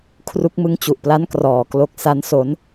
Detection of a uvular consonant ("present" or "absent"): absent